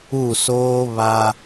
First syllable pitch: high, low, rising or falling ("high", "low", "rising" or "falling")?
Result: falling